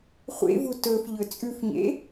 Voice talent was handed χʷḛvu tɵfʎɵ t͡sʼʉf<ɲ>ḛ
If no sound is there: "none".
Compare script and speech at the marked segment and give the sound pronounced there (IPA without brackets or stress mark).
ɲ